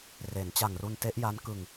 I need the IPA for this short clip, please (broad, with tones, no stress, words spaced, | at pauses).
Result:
re˩˦n t͡ɕa˨˩ŋru˧nte˦˥ʔja˦˥n kɯ˨˩ŋ